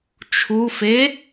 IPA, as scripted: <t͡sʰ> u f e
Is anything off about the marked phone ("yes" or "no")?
yes